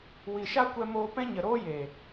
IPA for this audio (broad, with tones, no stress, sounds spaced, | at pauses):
w i˨ ʃ a˦ kʷ ɛ˧ m oː˧ p ɛ̃˦ ɲ ə˨ ɾ oː˦ j e˨